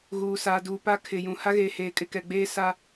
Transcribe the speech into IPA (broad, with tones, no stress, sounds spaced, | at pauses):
ɣ uː˨ s aː˨ d uː˨ p a˦ kʰ ɪ˨ j ũ˨ h a˦ ɣ eː˨ h eː˨ kʼ ɪ˦˨ k ɛ˨ ɡ͡b eː˦ s a˦